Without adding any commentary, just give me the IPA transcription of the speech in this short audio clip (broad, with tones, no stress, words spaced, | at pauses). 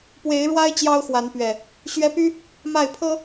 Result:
pwe˨˦ɪ̯ɻwa˦ɪ̯ t͡ɕjɑ˦ʊ̯xwa˨˦n pɥɛ˨˩ | ɕɥɛ˦ py˦ | ma˥˨ɪ̯pʰɤ˦